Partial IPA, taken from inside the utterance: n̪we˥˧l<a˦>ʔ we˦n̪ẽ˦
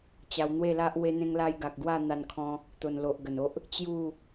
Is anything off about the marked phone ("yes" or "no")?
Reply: no